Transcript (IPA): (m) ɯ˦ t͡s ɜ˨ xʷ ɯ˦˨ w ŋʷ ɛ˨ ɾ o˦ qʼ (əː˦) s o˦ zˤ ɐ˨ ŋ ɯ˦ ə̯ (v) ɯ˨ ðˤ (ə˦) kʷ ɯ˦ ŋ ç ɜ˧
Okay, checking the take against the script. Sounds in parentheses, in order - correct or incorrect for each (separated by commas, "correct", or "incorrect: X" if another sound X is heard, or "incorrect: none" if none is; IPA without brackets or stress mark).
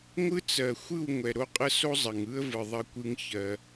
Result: incorrect: ŋʷ, incorrect: ə˦, correct, incorrect: ɐ˦